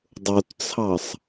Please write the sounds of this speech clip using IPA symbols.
dˤ o t t͡sʰ ɑ sˤ

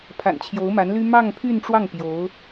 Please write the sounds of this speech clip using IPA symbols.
pʰ a̰˨˩ n t͡ɕʰ j o˧˥ ʊ̯ m a˧˥ n l y˥ m ɑ˥˧ ŋ pʰ y˥˧ n ʈ͡ʂ w ɑ˥˩ ŋ p j o˧˥ ʊ̯

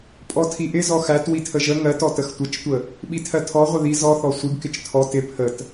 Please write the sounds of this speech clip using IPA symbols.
pʼ ɔ tʰ i ʔ ɪ z ɔ x æ t w i tʰ ə ʒ ə ŋ ɜ t ɔ t ə x tʷ ə t͡ʃ tʷ ə | ɓ i tʰ ɜ tʰ ɔ ʁʷ ɪ ð i z ɔ θ ɔ sʷ i ɡ k ɪ t͡ʃ tʰ ɔ t ɪ pʰ ə t

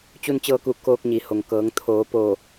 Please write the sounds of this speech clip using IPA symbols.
t͡ɕ u˧ n t͡ɕ ɤː˧ k u˧˩ k oː˧ k̚ ɲ i˩ h o˩ ŋ k ɤː˩˧ ŋ t̪ʰ oː˩˧ p o˧˩

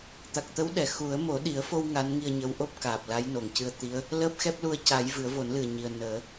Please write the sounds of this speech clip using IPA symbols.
t̪ a˨˩ k̚ t̪ ə˧˥ w ɗ ɛ˨˩ x u˨˩˦ ə̯ m o˨˩˦ ɗ i˨˩˦ ə̯ f o˧ w ŋ a˧˥ n ŋ i˧ ə̯ ɲ ə˧˥ w ʔ o˦˥ p̚ k aː˨˩ p̚ l a˧˥ j n o˨˩ ŋ c ɨ˧ ə̯ t̪ i˧˥ ə̯ | l əː˦˥ p̚ x ɛ˦˥ p̚ l u˧ ə̯ c a˨˩˦ j v ɨ˨˩˦ ə̯ v o˨˩˦ n l ɨ˨˩ ə̯ ɲ i˨˩ ə̯ n əː˨˩˦

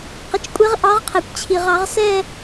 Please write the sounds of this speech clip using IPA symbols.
q ə˩˧˩ t͡ʃ kʷʼ e˧˥ ʁ ʔ ɑ˧˥ ʁ qʰ ɛ˩ kʷ t͡ɕʰ i˩ ʁ ɑ˧˩˧ ʁ s ɛ˥˧

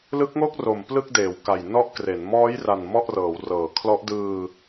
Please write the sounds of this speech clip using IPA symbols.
l ɯ˦˥ k̚ ŋ o˥˩ k̚ r o˨˩ m p l ɯ˥˩ k̚ d eː˩˦ w k a˨˩ j n ɔ˥˩ ʔ k r e˩˦ n m ɔː˦˥ j r a˨˩ n m ɔ˥˩ ʔ r ɤː˩˦ w r ɤː˩˦ kʰ l ɔ˦˥ ʔ d ɯː˧

